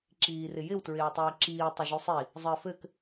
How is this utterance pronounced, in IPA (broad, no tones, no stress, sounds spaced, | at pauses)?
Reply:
ǁ iː r ɪ j ɪ w t ɹ ɪː w tˤ ɘː ǁ iː tˤ ɪ ʒ u sˤ i | zˤ ɘː f ɘ k